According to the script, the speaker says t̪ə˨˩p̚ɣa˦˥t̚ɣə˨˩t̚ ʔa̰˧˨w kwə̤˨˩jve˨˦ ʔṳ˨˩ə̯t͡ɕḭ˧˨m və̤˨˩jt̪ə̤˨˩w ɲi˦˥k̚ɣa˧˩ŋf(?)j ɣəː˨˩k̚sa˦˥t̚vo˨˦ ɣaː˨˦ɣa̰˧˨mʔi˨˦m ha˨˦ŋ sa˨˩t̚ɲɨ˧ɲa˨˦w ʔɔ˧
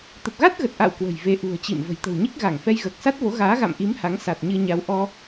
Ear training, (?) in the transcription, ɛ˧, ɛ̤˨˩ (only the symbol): ɛ˧